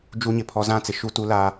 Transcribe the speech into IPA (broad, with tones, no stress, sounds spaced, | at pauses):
d͡ʒ u˦ ɲ ɪ˨ pʰ ɔ˦ z ã˦˨ t͡s ɪ˨ ʃ u˦˨ t u˦ l a˦